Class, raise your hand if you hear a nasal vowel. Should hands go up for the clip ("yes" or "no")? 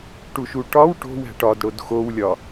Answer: no